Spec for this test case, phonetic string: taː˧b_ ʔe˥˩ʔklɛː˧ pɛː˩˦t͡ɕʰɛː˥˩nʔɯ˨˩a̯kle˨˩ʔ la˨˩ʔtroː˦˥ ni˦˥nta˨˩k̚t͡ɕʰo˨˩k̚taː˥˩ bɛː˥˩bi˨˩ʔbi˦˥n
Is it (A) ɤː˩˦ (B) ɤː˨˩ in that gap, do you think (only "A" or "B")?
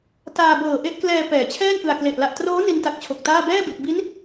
B